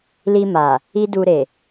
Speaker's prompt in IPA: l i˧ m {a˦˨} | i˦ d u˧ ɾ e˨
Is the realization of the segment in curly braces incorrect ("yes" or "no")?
yes